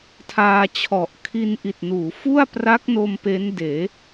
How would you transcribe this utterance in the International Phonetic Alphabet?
tʰaː˧t͡ɕʰɔ˨˩ʔ kʰi˧nʔi˨˩t̚nuː˩˦fu˥˩a̯ pra˦˥k̚no˧m pe˦˥ndeː˩˦

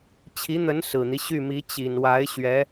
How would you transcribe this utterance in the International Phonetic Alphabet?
t͡ɕʰi˧˥n̪ə˧˥n sɹ̩˨˩n̪i˦ ɕy˥˩mi˧˥ t͡ɕi˨˩nwa˧˥ɪ̯ ɕɥɛ˧˥

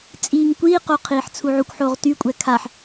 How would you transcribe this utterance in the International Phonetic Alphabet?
t͡sʼiːŋkʷiːqo qʰiːħt͡sʰuʕukʷħoːʁ tykʷʼɛ kʰaħ

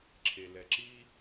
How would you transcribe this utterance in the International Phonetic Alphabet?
ǁʰelɛǁi

